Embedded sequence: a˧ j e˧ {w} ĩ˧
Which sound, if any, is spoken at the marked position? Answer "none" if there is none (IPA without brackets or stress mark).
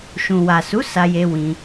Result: w